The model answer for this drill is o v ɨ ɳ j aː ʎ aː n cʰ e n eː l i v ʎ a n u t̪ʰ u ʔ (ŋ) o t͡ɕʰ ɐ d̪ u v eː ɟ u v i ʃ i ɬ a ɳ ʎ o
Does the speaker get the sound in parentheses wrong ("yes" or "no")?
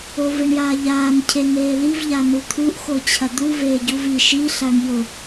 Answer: yes